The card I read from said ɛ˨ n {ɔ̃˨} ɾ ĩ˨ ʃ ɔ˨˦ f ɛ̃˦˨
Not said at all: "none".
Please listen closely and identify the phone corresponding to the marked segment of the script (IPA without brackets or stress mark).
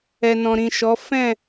ɔ̃˨